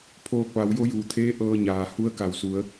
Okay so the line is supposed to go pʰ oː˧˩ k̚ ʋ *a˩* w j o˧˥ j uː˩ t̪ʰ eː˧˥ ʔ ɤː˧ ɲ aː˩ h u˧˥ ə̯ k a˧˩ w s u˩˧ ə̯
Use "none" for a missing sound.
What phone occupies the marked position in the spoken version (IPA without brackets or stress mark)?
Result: a˩˧